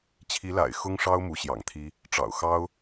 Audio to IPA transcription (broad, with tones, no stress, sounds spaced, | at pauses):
t͡ɕʰ i˧˥ l a̰˨˩ ɪ̯ x ʊ˥ ŋ ʂ ɑ˥ ʊ̯ m u˧˥ ɕ j ɑ̰˨˩ ŋ t̪ʰ i˥ | ʈ͡ʂ ɑ̰˨˩ ʊ̯ x ɑ˥ ʊ̯